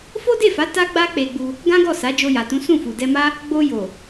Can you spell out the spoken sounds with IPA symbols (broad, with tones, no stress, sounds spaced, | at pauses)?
f o˦ d e˦˨ f a˨˦ t a˦ ɡ͡b a˦ k͡p e˧ ɡ͡b u˧ | ɡ ã˦ ɡ ɔ˦˨ s a˨˦ d͡ʒ o˧ j a˨ t ũ˨˦ s ũ˦˨ f u˨ d ɛ˧ m a˦ | ɡ͡b o˧ j o˨